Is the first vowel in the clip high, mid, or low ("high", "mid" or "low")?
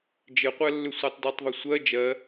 mid